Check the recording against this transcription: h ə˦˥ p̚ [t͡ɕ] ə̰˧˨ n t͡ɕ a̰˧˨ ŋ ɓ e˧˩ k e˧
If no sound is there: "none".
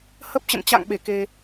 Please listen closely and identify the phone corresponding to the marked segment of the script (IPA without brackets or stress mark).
t͡ɕ